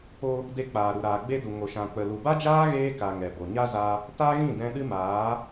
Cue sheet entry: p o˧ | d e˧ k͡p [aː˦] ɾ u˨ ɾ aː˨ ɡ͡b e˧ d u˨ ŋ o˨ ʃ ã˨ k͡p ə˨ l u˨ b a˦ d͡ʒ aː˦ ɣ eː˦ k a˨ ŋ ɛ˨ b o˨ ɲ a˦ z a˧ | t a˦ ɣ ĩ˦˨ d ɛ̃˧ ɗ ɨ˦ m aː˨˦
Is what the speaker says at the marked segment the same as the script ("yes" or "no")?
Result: no